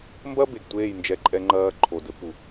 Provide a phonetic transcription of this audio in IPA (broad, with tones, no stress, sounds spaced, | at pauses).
m b ɐ˦ b e˨ ɡ tʷ eː˦˨ j n d͡ʒ ɛ˧ ǃʼ ɛ˧ ŋ͡ǃ ɐː˧ ǃʰ o˨ d ɘ˧ p u˨